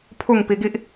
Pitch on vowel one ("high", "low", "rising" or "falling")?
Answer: falling